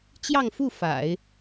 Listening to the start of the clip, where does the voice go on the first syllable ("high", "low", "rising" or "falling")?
falling